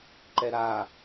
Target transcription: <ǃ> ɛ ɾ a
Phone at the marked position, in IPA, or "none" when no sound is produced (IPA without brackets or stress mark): ǃ